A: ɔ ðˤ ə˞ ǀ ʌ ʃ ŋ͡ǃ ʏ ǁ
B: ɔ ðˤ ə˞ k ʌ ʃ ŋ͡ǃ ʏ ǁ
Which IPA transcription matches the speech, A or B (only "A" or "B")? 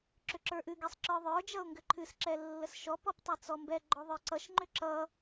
A